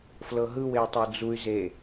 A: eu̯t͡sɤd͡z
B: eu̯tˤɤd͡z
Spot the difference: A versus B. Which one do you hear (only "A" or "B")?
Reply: B